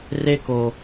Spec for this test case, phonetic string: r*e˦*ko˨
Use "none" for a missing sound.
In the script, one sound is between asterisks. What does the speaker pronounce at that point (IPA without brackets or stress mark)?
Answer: e˦